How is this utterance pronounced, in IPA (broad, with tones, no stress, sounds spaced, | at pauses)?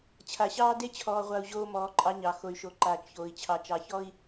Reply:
t͡ɕʰ a˨ ɕ ɑː˦ d e˦ t͡ɕʰ ɔː˨ ʁʷ a˨ u̯ ʑ oː˦ m ɔː˨˦ ǃʼ ɑ˦ ɲ ɑ˨ x o˨ y̯ ʃ o˨ ǃ aː˨ t͡ʃ ç oː˨ i̯ t͡ɕʰ ɑ˨ t͡ʃ ɑ˨ ç ɔ˦ i̯